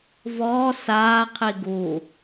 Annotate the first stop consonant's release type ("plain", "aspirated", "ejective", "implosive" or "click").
aspirated